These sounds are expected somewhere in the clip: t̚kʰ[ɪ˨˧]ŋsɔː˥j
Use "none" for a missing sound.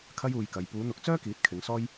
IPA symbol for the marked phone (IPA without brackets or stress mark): ɪ˨˧